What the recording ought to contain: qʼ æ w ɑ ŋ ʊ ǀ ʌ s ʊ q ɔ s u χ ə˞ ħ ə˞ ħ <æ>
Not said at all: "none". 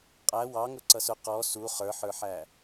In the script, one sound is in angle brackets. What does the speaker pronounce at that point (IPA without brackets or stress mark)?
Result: æ